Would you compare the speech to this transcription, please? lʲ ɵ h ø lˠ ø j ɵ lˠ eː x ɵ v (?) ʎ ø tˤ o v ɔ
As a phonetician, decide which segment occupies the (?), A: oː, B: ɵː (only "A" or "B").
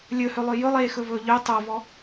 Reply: B